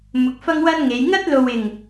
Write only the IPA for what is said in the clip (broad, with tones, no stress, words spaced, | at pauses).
mʊ˨˥k̚ fɐ˥ŋwɐ˥nŋe˨˧j ŋɐ˥t̚lo˨wɪ˨˩ŋ